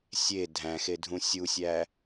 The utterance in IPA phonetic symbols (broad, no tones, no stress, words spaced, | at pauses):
sʲe dʱæ̃xedʱũ sʲusʲæ